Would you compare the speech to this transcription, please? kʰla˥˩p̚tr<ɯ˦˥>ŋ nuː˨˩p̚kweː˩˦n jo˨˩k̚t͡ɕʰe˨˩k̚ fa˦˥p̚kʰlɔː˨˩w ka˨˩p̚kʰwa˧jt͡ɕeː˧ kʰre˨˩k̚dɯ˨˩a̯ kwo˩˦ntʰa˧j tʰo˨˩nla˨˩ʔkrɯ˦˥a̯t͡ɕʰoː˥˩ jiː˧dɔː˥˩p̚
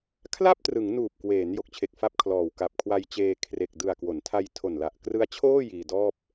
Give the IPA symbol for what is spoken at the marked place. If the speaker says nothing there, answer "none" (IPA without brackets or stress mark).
ɯ˩˦